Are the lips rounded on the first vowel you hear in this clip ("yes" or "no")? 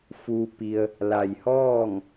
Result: yes